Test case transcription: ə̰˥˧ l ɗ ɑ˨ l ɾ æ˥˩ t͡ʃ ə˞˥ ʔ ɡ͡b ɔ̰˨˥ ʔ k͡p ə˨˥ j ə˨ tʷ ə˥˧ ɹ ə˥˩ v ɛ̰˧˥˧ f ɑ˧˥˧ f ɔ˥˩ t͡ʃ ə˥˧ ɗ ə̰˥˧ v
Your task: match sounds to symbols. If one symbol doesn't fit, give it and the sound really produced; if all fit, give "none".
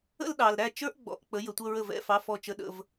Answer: none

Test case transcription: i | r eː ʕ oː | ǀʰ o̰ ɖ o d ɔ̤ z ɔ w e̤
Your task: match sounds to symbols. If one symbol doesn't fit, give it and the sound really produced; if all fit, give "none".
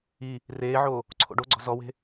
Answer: d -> ɡ͡ǀ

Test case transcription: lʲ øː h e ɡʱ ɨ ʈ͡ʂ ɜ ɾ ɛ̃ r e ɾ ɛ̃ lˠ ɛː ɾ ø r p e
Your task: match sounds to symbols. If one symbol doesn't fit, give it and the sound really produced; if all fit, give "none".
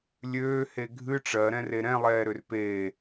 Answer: none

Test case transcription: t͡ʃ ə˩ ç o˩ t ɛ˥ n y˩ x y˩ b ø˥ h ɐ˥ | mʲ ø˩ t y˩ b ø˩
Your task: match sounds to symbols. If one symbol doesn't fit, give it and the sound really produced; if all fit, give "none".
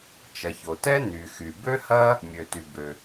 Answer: ə˩ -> ɐ˩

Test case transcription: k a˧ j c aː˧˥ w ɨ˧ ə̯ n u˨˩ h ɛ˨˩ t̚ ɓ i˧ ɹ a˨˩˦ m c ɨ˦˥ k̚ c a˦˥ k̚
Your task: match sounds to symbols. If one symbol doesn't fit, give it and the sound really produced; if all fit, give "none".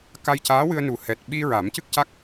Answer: none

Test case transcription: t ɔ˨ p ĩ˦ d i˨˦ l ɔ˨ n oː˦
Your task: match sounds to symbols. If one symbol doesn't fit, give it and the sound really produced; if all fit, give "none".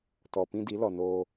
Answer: none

